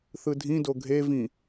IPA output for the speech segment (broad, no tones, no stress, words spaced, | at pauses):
θɯdʱĩdo ɡʱevĩ